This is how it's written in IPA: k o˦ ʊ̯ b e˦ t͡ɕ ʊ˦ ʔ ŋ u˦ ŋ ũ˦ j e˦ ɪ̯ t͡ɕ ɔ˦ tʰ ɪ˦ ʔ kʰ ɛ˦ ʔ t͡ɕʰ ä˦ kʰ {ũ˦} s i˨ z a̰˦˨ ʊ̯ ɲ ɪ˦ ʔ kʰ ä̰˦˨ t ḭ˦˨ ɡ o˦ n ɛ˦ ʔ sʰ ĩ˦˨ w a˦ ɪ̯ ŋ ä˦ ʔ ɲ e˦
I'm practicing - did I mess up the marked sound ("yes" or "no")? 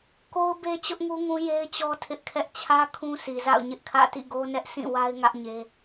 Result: no